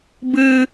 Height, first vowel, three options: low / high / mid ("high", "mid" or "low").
high